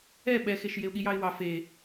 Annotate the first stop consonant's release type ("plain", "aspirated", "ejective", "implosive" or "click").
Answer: implosive